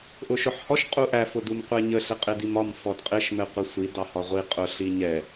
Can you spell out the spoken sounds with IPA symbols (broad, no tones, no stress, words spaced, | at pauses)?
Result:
ʔʊʃʊħhɔʃ qʼuʔæ fʊdumqʷɛɲə ɬɪqʼɪdimɒm fɔdqʼɪʃ mɛqʷisʷi dɑhɒʁʷi qʼʊ ɬiɲɛ